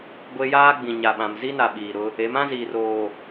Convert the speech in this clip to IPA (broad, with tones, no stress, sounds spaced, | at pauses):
ɡʷ e˦ j aː˦ ɡ͡b ĩ˨ ɲ a˨ ɓ ã˨ m z i˦ n a˨ ɓ iː˨ ɾ ʊ˦ | e˨˦ m ã˦ z iː˨ r oː˨